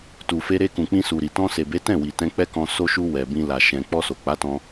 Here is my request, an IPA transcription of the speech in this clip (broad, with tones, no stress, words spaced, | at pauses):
tu˨fe˧ɾe˧ kũ˨k͡pĩ˧ su˨ɾi˨ tɔ̃˧se˨be˨˦ tɛ̃˦˨wi˨ tɛ̃˧k͡pɛ˦kɔ̃˧ so˧ʃu˧ wɛ˨bĩ˧la˨ ʃɛ̃˨k͡pɔ˧so˨ k͡pa˨˦tɔ̃˧